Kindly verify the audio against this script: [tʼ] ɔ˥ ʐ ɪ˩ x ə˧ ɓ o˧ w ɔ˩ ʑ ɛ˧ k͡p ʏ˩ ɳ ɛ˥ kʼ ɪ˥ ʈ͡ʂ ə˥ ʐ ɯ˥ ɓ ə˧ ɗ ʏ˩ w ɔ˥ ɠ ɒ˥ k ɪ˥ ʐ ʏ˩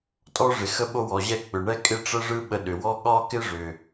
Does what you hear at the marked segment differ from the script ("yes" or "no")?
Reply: no